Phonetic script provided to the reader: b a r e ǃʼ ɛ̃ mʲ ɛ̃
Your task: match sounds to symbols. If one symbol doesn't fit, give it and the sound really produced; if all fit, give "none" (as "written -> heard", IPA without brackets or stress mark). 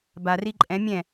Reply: e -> i